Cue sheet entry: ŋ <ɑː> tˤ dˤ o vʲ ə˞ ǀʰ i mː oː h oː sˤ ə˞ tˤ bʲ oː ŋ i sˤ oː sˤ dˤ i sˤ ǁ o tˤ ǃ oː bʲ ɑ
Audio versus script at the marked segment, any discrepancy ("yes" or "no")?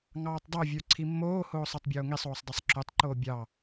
no